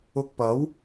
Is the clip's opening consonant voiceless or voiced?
voiceless